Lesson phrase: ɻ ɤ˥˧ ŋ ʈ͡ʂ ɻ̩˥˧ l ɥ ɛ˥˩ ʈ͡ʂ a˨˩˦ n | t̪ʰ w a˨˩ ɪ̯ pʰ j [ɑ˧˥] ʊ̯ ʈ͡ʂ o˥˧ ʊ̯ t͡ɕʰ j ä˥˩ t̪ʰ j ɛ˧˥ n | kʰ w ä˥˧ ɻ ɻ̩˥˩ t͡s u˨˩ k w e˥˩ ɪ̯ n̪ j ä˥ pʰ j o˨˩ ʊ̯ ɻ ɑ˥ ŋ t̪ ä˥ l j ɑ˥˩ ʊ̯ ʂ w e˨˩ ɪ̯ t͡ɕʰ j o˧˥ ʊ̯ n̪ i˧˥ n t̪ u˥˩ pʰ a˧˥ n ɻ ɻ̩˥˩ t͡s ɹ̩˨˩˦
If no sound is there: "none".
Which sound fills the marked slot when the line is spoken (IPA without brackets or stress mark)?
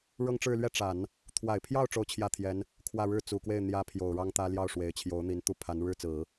ɑ˥˧